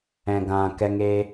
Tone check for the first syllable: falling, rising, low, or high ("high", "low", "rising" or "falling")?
low